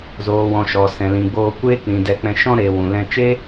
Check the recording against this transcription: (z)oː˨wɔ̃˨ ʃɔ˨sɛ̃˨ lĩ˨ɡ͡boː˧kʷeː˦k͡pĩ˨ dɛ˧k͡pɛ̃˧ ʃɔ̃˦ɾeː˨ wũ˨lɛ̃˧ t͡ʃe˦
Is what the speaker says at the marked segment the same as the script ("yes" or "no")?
yes